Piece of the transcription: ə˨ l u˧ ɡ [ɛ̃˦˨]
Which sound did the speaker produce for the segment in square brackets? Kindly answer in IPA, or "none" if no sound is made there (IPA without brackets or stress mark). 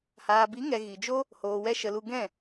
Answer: ɛ̃˦˨